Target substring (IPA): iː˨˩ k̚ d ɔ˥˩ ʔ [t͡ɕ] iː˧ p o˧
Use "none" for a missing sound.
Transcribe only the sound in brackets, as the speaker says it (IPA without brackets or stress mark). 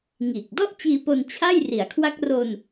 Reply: t͡ɕ